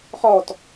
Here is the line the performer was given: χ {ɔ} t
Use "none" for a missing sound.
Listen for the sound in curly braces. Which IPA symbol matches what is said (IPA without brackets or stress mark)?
ɔ